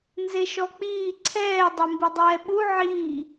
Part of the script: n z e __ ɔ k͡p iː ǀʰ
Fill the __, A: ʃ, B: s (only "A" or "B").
A